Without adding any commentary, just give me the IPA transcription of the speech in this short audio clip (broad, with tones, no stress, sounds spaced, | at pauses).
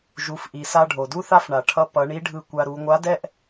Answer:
ʒ u˩˧ f ʔ i˩ s a˧ ɖʱ o˩ d u˥ θ a˥ f ɳ a˩ ʈʰ ʌ˧˥ p ʌ˩˧ ɳ i˧˥ ɖʱ ɯ˧ kʷ a˧ ɾ u˩˧ ŋʷ a˧˥ d ɛ˥ ʔ